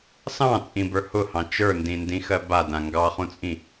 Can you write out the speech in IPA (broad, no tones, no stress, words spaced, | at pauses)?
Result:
sɑ̃t͡sʼĩbə˞ hʊhɑ̃ t͡ʃə˞ndĩndĩxɜ badã ŋɡɑχũt͡sʼĩ